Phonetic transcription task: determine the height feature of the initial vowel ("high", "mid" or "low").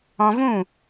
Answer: mid